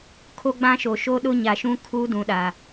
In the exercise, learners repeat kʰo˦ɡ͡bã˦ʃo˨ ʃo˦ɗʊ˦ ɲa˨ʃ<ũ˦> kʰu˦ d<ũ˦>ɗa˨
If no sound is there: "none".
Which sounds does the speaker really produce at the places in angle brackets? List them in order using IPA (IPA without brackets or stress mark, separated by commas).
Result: ũ˦, ũ˨